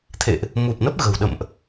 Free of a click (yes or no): yes